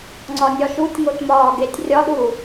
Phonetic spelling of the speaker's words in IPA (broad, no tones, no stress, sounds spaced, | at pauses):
ŋ͡ǀ ɒ nʲ ɒ ʃ u tʲ ŋ o t m ɒː ɡ e tʲ rʲ ɒ ɗ u